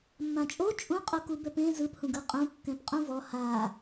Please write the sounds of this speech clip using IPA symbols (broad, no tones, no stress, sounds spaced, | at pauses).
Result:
mː ã t͡ʃʼ o t͡ʃʼ ũ qʼ o k u b ɛ p ẽ z ɯ p h ũ ɡ ɯ qʼ ũ kː ɛ̃ p qʼ ũ v ɔ h a